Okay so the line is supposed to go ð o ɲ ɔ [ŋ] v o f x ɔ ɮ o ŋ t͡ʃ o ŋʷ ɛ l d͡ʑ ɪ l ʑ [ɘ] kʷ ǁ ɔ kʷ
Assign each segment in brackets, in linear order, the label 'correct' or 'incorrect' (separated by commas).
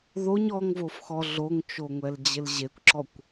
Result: correct, incorrect